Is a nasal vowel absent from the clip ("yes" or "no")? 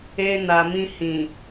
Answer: no